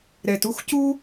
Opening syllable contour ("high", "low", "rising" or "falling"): low